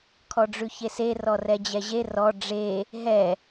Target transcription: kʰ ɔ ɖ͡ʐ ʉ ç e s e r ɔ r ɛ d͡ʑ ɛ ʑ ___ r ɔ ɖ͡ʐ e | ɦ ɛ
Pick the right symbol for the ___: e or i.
e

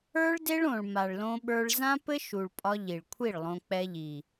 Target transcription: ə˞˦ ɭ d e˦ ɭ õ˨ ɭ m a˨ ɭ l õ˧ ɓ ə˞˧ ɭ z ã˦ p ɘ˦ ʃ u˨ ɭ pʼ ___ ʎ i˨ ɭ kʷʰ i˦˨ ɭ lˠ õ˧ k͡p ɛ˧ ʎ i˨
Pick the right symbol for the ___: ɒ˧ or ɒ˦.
ɒ˧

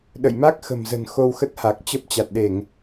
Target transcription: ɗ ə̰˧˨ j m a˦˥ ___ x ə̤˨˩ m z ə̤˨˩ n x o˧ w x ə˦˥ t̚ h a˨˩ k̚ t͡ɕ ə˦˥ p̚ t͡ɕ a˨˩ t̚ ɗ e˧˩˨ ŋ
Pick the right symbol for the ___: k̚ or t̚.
k̚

